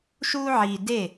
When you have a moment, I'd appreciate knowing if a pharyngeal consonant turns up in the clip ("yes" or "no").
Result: yes